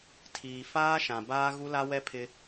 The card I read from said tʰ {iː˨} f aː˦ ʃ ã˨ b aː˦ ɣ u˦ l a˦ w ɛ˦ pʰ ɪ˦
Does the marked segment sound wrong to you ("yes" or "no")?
no